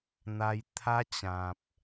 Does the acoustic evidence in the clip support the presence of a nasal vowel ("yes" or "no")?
yes